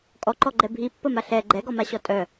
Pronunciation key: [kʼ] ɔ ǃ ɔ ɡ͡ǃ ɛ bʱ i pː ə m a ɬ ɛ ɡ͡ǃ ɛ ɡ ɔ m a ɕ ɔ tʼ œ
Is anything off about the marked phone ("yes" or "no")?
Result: no